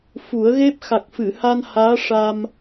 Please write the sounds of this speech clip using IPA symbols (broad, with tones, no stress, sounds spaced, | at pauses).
f u˨˩˦ ə̯ ɣ e˦˥ p̚ x a˨˩ k̚ f ɨ˨˩˨ h a˧ n h aː˧˥ ʂ a˧ m